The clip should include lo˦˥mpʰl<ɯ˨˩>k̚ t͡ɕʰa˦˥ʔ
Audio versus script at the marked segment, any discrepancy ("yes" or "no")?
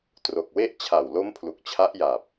yes